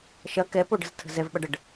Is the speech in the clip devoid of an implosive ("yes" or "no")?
no